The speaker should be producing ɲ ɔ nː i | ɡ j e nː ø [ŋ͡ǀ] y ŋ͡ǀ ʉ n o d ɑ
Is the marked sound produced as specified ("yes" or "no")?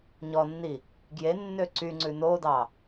no